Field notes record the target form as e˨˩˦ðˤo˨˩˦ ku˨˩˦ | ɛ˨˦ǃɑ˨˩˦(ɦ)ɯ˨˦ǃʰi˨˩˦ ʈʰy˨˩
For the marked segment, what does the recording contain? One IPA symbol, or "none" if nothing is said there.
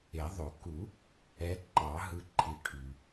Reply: ɦ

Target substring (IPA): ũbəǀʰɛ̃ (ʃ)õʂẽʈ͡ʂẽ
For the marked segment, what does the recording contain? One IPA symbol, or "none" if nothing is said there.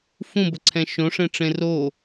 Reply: ʃ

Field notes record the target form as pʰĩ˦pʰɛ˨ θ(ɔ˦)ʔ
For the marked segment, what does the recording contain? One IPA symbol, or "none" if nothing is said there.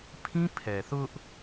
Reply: ʊ˦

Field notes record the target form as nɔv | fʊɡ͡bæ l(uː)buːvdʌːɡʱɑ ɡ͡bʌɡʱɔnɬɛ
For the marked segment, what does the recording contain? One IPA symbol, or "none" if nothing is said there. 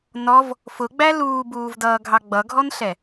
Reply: uː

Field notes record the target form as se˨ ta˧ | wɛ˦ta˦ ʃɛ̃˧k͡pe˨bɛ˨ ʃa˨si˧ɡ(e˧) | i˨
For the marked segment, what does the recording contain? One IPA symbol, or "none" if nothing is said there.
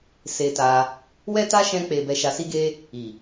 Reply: e˧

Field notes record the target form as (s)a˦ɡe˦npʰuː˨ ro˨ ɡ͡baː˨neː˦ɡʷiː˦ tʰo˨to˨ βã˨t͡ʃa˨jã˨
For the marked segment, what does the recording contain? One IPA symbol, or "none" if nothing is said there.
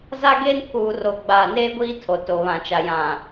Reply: z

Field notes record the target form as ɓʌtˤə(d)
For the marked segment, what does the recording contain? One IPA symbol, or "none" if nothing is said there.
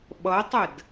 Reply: d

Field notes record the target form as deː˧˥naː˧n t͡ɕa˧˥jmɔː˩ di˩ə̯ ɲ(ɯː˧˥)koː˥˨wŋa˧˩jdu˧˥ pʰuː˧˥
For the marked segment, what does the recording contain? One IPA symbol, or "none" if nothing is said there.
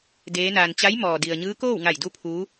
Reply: ɯː˧˥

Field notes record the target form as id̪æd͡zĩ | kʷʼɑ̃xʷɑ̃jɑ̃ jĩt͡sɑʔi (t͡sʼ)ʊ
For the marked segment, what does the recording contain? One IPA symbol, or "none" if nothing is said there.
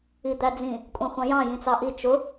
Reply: t͡ʃ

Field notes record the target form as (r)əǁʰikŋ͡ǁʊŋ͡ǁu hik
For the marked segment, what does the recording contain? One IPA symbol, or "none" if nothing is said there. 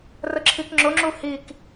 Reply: r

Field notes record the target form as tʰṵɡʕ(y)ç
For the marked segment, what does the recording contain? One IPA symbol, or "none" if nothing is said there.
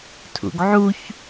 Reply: u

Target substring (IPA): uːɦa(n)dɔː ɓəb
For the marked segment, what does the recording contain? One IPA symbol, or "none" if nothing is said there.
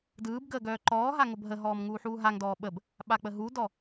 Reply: ŋ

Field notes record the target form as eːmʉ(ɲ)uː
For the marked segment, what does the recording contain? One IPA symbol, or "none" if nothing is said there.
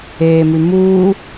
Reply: m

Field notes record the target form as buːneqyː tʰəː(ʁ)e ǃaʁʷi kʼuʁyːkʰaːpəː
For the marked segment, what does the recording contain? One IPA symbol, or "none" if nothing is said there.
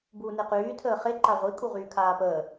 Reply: χ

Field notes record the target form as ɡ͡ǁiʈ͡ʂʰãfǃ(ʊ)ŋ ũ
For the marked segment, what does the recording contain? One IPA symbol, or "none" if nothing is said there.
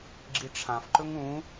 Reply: ɵ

